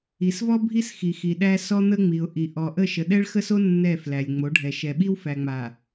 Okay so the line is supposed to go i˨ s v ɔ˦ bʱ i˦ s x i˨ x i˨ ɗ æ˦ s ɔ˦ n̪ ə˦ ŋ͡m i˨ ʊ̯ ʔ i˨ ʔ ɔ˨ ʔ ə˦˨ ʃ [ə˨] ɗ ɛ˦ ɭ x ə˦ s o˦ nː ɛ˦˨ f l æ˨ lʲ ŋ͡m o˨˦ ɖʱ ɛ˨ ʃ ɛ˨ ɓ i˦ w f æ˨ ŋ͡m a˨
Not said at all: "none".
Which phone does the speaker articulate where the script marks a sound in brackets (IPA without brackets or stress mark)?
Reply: ə˨